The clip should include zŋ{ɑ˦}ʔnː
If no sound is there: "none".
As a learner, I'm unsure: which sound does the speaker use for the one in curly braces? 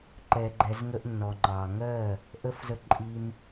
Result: ə˦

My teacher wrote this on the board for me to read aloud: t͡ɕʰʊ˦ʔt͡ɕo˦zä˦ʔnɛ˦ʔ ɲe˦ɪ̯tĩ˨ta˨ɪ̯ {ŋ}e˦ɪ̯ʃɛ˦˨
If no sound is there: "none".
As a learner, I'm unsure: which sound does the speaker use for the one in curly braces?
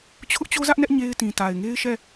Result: ŋ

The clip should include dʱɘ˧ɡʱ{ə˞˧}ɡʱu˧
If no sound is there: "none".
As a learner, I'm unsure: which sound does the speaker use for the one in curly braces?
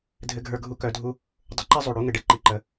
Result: ə˞˧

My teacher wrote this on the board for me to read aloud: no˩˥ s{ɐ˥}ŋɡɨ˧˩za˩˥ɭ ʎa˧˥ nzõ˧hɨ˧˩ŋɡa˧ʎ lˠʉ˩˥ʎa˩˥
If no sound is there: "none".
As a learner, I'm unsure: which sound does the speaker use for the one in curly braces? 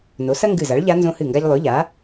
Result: ɐ˥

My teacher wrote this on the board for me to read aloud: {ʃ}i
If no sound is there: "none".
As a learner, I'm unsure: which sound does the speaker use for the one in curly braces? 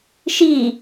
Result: ʃ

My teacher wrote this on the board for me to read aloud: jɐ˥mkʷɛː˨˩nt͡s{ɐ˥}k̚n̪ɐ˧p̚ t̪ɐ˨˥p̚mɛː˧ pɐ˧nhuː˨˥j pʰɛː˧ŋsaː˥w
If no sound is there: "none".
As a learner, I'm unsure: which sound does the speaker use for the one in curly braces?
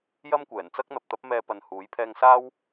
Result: ɐ˥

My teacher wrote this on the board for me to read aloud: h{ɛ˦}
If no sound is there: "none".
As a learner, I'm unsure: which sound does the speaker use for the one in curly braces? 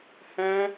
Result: ɛ̃˦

